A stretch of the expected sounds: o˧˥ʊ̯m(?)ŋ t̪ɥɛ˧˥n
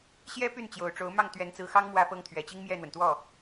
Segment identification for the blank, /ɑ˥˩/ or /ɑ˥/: ɑ˥˩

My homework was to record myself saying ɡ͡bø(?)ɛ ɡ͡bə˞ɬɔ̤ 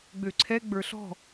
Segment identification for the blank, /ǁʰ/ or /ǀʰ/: ǀʰ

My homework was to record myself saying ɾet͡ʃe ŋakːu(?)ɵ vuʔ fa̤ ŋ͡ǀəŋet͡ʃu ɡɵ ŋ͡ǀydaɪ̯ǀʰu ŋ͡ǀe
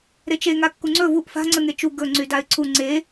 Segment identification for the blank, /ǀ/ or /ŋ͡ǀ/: ŋ͡ǀ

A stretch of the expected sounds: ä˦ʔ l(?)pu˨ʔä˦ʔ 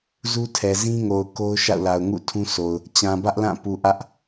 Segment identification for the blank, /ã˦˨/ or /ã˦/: ã˦˨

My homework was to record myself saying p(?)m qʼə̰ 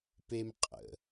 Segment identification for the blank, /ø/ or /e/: e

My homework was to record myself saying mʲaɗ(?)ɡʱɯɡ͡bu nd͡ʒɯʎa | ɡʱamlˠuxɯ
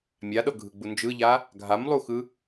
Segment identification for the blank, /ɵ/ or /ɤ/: ɤ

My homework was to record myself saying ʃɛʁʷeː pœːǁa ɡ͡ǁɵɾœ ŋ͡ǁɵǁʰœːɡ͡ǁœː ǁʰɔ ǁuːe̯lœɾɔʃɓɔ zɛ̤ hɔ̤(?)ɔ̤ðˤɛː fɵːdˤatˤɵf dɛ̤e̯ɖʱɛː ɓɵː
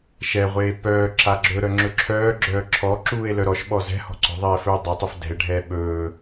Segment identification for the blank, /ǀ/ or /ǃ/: ǀ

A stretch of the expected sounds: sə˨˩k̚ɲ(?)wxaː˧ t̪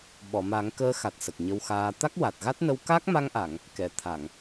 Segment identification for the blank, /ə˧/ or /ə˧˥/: ə˧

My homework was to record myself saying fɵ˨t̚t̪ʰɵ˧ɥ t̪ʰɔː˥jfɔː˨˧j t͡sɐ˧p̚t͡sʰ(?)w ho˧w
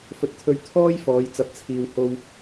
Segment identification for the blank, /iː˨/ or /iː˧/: iː˧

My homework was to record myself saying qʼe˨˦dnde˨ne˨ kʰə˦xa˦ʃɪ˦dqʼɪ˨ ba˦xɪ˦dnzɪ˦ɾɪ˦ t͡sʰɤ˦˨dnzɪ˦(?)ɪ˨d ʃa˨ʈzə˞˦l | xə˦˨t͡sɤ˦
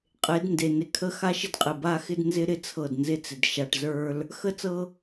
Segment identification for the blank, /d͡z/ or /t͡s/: t͡s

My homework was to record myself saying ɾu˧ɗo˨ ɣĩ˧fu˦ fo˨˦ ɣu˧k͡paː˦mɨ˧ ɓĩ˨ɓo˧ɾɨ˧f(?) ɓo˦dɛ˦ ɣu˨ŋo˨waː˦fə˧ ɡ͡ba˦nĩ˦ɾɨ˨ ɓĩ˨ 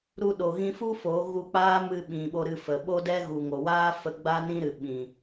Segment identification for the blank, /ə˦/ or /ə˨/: ə˨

